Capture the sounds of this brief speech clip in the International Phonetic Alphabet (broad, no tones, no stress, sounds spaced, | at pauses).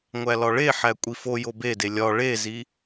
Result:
ŋʷ æ l ɒ ɭ e ħ æ kʷʼ i f o j o b e d e lʲ ɒ ɭ e z i